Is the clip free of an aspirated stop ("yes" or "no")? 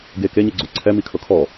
no